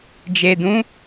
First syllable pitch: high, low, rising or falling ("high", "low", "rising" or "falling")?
low